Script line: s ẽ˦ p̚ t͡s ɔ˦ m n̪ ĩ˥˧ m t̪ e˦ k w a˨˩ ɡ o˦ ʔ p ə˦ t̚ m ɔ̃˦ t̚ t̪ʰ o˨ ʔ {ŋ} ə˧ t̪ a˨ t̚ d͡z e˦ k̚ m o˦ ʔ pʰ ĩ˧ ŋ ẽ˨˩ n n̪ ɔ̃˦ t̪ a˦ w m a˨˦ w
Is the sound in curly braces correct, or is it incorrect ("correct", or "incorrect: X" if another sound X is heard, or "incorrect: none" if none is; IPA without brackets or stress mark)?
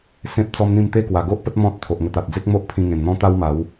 correct